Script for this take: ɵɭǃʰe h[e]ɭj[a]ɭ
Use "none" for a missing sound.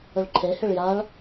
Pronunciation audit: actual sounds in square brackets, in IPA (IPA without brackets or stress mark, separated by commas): e, a